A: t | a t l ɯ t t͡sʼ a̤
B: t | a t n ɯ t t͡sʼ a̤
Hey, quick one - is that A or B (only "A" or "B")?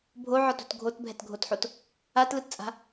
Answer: A